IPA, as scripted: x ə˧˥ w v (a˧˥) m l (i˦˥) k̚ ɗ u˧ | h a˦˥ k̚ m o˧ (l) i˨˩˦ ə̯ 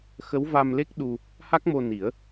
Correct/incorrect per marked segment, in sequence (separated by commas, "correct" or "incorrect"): incorrect, incorrect, incorrect